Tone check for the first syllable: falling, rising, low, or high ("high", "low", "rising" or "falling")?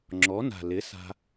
rising